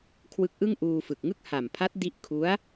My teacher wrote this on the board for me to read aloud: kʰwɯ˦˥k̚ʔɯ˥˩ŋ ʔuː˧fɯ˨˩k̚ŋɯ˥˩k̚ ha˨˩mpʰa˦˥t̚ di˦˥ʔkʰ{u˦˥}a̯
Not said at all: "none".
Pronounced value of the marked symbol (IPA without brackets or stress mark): u˦˥